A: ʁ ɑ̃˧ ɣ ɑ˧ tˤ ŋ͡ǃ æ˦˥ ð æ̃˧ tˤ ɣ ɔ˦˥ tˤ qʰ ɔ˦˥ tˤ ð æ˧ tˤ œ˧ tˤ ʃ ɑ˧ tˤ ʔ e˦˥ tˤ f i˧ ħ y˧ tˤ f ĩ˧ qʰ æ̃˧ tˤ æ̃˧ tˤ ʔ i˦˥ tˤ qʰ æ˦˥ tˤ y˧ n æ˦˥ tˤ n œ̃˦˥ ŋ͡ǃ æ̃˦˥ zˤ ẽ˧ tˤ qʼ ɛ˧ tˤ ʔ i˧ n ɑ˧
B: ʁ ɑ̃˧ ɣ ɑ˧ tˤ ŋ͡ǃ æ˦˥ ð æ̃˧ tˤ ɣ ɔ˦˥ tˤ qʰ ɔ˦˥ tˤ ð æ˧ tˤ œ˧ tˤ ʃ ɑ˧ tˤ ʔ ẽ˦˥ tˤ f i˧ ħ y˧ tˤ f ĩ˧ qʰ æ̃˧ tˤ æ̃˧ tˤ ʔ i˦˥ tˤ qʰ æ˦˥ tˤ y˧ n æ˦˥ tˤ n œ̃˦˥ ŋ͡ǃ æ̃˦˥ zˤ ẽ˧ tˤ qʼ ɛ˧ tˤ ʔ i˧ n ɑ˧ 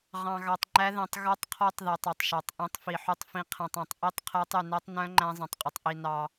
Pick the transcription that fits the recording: B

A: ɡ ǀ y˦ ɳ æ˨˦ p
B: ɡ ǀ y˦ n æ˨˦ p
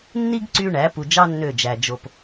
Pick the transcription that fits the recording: A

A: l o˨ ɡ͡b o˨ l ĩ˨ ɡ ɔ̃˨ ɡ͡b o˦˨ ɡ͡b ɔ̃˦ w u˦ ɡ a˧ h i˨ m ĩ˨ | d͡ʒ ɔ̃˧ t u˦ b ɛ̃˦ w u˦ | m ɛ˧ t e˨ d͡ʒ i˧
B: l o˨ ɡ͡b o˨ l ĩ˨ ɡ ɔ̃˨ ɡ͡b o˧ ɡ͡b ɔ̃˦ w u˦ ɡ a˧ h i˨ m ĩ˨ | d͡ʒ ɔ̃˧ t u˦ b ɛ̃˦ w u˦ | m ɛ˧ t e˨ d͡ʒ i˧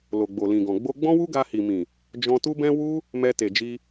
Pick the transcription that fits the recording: B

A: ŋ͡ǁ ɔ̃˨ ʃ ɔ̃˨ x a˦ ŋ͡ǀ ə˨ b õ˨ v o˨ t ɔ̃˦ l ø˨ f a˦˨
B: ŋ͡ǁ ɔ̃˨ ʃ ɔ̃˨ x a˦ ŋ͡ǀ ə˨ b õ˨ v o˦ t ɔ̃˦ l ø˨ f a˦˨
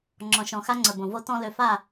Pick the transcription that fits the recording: B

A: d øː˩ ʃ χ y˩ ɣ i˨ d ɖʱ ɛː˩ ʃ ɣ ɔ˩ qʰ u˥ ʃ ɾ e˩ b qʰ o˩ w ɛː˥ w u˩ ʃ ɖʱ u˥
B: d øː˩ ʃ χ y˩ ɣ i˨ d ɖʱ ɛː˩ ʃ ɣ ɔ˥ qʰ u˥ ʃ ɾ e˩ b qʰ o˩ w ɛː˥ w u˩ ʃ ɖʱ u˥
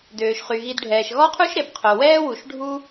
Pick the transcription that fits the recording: B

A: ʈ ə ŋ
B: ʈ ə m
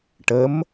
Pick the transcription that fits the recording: B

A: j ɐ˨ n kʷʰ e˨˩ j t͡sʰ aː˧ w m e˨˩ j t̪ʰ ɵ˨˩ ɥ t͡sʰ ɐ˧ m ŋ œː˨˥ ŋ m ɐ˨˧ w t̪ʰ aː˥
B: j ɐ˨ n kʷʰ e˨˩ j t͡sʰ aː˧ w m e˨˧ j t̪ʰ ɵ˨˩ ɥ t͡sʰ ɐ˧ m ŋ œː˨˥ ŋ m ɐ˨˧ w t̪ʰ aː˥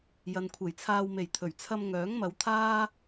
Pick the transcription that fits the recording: A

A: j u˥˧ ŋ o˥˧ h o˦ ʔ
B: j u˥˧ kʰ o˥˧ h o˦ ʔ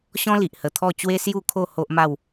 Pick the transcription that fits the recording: B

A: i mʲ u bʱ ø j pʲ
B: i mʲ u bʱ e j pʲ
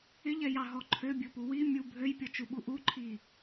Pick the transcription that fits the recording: A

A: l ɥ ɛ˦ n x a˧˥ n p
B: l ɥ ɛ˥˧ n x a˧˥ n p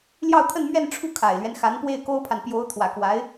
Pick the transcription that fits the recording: A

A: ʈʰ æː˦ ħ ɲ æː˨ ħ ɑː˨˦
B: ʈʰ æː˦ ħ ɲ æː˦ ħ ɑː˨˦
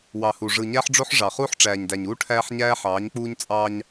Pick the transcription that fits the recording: B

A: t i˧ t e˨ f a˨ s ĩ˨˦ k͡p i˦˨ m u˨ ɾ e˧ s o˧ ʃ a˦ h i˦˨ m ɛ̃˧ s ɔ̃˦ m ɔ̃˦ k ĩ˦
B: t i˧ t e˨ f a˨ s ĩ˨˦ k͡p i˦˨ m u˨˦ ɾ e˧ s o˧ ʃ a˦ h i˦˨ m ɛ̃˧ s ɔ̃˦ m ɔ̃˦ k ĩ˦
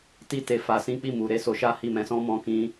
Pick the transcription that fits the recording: A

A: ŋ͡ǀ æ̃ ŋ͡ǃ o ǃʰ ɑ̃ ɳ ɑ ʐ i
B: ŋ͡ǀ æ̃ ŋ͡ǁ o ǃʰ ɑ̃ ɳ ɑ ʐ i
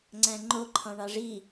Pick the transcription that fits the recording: A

